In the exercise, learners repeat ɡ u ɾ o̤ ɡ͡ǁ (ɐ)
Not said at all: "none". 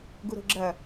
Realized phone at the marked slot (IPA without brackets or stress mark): ɐ